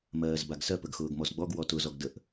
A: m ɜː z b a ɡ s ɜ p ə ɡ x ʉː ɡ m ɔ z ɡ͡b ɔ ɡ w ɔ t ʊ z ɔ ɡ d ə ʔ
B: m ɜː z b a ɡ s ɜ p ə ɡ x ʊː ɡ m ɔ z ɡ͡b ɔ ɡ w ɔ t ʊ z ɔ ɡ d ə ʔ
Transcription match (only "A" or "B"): B